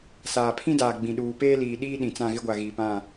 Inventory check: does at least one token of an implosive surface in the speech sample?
yes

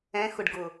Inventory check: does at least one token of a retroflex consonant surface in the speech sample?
yes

